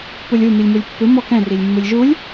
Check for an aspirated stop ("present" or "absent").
absent